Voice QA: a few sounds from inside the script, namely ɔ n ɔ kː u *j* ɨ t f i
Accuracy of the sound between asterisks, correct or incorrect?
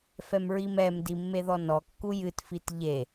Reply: correct